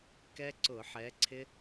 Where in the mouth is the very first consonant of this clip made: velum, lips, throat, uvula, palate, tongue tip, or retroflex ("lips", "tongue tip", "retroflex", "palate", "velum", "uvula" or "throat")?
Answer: velum